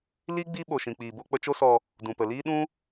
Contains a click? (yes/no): no